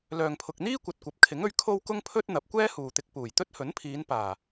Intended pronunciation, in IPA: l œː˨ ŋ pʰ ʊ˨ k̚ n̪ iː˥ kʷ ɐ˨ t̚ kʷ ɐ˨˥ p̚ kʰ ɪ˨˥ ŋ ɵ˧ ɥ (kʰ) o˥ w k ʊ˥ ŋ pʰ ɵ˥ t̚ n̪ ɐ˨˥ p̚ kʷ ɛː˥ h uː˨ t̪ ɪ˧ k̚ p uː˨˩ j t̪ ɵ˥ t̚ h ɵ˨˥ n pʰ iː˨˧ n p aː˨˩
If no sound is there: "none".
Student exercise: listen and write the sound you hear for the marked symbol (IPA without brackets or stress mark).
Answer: kʰ